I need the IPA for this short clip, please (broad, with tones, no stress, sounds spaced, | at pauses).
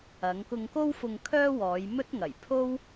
ɐ˨˧ ŋ k ʊ˧ ŋ k o˥ w f ʊ˧ ŋ kʰ œː˥ w ɔː˨˧ j m ɵ˥ t̚ ŋ ɐ˨˩ j pʰ o˥ w